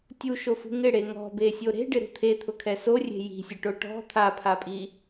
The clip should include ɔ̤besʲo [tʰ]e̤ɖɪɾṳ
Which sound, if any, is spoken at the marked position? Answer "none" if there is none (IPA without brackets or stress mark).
ɾ